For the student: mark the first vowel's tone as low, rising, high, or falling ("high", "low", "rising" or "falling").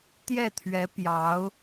falling